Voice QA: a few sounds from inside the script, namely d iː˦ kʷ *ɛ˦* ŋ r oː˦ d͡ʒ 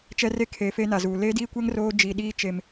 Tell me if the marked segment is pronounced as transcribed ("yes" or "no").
yes